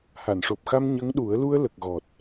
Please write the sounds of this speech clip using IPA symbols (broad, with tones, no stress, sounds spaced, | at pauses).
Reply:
h a˨˩˨ n ʂ o˨˩ p̚ x a˧ m ɲ ə˧˥ ŋ ɗ u˨˩˦ ə̯ l u˧ ə̯ l ə˨˩ k̚ ɣ ɔ˨˩ t̚